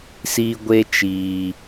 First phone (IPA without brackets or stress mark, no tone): s